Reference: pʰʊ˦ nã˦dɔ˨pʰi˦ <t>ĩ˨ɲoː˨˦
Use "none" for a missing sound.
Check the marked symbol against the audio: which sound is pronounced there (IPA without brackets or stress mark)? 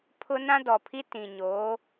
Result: t